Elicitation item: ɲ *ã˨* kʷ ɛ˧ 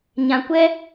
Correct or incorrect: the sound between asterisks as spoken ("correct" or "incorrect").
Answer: correct